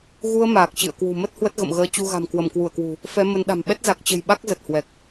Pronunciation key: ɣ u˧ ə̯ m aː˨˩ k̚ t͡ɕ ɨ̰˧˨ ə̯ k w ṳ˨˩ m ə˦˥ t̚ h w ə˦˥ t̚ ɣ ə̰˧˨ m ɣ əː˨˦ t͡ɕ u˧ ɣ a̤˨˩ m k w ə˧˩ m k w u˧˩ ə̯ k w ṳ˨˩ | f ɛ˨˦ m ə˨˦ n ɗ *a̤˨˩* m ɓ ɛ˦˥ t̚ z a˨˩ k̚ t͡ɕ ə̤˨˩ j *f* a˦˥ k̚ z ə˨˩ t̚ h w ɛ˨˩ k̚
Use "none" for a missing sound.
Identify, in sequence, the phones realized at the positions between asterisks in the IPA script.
a̤˨˩, ɓ

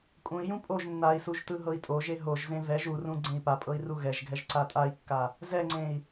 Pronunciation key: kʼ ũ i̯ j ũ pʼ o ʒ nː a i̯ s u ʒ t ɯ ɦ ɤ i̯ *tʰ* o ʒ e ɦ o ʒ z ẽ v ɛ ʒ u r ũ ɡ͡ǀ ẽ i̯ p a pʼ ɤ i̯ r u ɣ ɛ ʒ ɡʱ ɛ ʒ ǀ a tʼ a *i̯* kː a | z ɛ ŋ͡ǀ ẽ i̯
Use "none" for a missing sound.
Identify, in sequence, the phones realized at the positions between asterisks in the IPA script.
tʼ, i̯

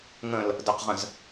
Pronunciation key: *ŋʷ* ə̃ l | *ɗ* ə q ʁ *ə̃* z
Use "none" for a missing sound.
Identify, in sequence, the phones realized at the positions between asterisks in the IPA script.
ŋ, d, ə̃

